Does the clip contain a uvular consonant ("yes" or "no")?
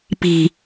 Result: no